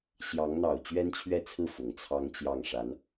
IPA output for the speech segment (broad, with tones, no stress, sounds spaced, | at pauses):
ɕ j ɑ˧˥ ŋ n̪ ɑ˨˩ ʊ̯ t͡ɕ ɥ ɛ˥ n t͡ɕʰ ɥ ɛ˥˧ t͡sʰ ɹ̩˥˩ f ʊ˨˩ ŋ t͡sʰ ɑ˥ ŋ t͡ɕ j ɑ˥˩ ŋ ʂ a˧˥ n